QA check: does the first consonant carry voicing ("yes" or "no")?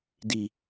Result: yes